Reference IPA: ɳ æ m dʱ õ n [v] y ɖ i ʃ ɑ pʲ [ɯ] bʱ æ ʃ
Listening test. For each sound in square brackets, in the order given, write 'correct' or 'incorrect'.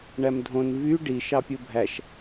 correct, correct

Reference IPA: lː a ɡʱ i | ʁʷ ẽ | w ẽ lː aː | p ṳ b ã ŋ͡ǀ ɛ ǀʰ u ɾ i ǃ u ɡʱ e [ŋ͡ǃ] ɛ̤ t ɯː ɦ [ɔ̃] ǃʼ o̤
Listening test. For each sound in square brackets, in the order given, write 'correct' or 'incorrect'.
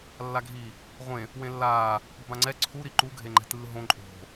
correct, incorrect: õ

